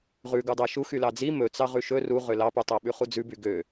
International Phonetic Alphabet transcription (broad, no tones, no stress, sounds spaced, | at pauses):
ʁ ʉ ɡ u dˤ æ ʃ u x y l ɑ d͡z i m ɵ t͡s ɑ ʁ ʉ ʃ ɵ r u ʁ ø l ɑ p y tˤ æ ɓ ʉ χ u d͡z ʉ b y ɡ ø